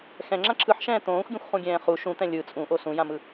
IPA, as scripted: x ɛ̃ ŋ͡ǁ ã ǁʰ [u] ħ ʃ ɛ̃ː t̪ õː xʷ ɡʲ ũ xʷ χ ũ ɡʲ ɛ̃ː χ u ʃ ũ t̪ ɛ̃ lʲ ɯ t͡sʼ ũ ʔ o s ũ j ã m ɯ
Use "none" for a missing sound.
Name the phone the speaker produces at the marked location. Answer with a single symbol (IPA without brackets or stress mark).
ɯ